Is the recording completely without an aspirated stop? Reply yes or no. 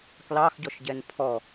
no